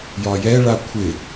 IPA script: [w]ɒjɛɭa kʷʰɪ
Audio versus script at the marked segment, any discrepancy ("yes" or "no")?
yes